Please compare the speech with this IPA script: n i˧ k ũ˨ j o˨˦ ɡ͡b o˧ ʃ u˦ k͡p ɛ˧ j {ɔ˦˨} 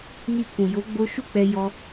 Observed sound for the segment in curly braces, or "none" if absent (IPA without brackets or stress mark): ɔ˧